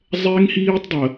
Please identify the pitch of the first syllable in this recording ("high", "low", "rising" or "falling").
high